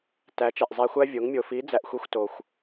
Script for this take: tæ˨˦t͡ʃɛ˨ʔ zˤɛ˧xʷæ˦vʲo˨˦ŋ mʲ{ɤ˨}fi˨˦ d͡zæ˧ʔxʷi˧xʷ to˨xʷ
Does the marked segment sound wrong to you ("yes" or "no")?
yes